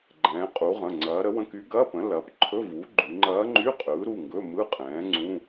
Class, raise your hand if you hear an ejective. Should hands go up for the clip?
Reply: yes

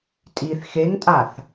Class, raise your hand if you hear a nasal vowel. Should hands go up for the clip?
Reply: no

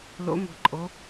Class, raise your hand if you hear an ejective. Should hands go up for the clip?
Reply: yes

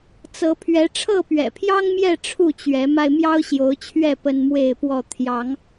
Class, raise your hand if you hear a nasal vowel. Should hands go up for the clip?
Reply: no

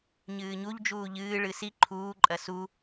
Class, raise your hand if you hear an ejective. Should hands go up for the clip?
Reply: yes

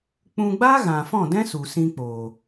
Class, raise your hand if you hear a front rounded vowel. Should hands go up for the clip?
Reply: no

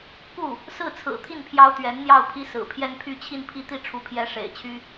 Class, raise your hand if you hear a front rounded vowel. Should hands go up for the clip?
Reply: yes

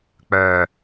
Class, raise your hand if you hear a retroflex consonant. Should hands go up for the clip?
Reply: no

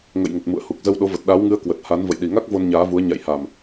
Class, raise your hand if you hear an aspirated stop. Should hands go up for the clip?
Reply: no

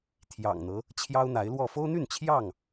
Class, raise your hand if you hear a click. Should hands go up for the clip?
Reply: no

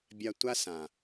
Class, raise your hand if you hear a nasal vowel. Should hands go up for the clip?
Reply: yes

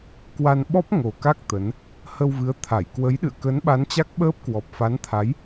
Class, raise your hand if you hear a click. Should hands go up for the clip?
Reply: no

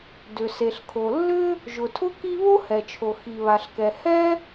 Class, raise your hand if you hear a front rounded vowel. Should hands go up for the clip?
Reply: yes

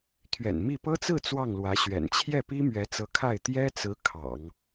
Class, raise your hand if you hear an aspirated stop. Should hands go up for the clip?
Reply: yes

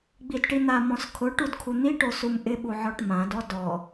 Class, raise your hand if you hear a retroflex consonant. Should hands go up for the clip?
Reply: yes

